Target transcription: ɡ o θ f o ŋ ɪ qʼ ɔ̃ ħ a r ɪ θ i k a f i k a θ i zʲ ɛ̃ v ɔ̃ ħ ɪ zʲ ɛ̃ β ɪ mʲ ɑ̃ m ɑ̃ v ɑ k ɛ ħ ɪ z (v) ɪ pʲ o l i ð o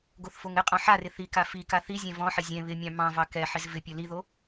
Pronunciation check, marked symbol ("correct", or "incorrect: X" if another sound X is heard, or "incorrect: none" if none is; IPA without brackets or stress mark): correct